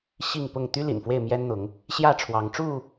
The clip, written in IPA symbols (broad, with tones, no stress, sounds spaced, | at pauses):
ɕ i˥˨ ŋ p ʊ˥˨ ŋ t̪ y˦ l ḭ˨˩ n f w e˥˨ ɪ̯ m j ɛ˦ n n̪ ʊ˨˦ ŋ | ɕ j ä˥˨ ʈ͡ʂʰ w ɑ˨˦ ŋ ʈ͡ʂ u˥˨